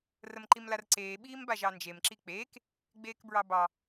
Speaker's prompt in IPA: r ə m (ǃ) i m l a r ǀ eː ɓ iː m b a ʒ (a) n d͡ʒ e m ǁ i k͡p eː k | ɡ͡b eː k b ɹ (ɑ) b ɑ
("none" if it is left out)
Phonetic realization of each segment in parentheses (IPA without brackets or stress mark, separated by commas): ǃ, ɑ, ɑ